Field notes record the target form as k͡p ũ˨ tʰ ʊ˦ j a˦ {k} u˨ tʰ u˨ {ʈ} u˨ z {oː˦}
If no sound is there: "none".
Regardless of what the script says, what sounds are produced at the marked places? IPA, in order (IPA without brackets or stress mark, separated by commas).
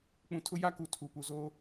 k, p, oː˦